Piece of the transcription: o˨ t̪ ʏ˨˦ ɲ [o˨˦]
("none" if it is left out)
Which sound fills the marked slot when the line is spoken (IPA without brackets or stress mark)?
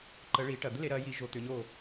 o˦˨